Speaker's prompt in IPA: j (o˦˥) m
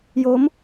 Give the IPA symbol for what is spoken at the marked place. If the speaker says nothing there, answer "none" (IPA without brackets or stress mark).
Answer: o˦˥